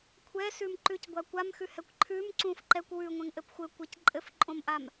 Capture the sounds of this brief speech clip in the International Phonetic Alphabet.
kʷʰ ɛ s ʉ m ǃ ʉ c ɡʷ a kʷ a m x ʉ h ɛ kʷ ǃʰ ʉ m ǀ ũ f ǃ ɛ kʷ w ʉ ŋʷ ɛ̃ ŋ ʔ ɘ p xʷ ɘ kʷ ɛ c ǃʼ ɘ f ǃʼ õ m ʔ a m

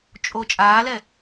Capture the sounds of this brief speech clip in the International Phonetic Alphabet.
t͡ʃʼ o t͡ʃʼ aː l ɛ

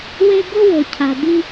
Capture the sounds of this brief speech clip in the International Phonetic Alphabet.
w e˦ ɡ o˥ w o˩ cʰ a˩ d̪ i˦

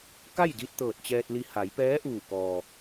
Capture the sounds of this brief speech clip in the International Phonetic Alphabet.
k a˥˨ j d i˧ t̚ t̪ ɤː˧˩ t̚ t͡ɕ ɛː˧ t̚ l i˧ h a˩˧ j p ɛː˧˥ ʔ uː˧˩ k ɔː˩

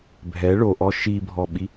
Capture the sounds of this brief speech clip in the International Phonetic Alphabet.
bʱ ɛ ɭ o ʔ ɔ ʃ i bʱ ɔ ɓ i

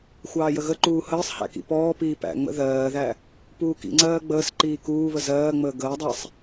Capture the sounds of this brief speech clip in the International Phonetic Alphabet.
xʷ ɑː j ə ɣ ə ǃ uː h əː sˤ h æ̰ k ḭ p ɔː p iː p æ̰ ŋ͡m ə̰ ð ɜː ð æ | p uː k ḭ ŋ͡ǀ ɜː ɡ͡b əː s ǃ iː k uː β ə z ɜː ŋ͡m əː ɡ əː dˤ æ sˤ

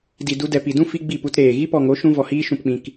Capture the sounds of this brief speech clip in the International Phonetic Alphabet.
d i˨ d u˧ d ɛ˨ p i˨ d ũ˦ f i˧ ɡ͡b i˦˨ p u˧ t ɾ eː˨ ɣ i˦ p ɔ˨ ŋ o˨˦ ʃ ũ˧ v ɔ˨ h iː˧ ʃ ũ˨ p k͡p ĩ˨ k

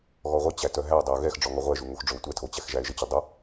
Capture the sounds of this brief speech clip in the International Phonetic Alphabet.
ɣ ɔ ʁʷ ʌ t͡ɕ æ t œ ɦ æ ʊ̯ dˤ ɵ ʊ̯ ɣ ɛ x ɖ͡ʐ ɔ ŋ ɔ ʁʷ ɛ ʒ u ŋ o x ɖ͡ʐ ɵ ʊ̯ tʷ ɛ tʰ o t͡ɕ æ x ʒ æ ɪ̯ ʒ ə t͡ɕ ə dˤ o

